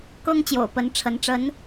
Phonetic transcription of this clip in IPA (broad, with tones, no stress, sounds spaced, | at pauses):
k ɤ˥ ŋ t͡ɕ j o̰˨˩ ʊ̯ p ə˧˥ n ʈ͡ʂʰ ə˧˥ n ʈ͡ʂ ə˧˥ n